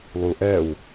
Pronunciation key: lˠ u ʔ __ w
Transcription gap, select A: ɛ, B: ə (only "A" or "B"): A